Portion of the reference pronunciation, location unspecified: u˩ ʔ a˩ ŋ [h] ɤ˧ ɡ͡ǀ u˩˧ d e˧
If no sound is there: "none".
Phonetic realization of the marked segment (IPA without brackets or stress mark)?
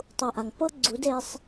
p